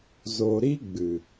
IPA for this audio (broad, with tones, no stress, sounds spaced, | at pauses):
z o˨ ɾ i˦ ɡ͡b ɨ˨